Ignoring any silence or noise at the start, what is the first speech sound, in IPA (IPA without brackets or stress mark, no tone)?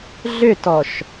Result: ɮ